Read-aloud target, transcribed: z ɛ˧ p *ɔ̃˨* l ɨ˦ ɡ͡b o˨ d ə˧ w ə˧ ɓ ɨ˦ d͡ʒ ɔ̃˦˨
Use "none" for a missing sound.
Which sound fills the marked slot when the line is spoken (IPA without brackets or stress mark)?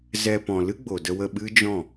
ɔ̃˨